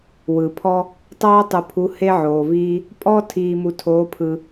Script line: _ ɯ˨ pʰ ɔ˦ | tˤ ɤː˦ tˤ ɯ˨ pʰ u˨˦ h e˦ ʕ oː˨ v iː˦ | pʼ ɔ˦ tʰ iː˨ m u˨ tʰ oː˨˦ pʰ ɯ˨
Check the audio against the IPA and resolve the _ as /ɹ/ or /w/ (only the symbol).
w